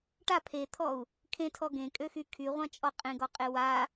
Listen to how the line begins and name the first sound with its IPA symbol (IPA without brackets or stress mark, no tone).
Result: ʈ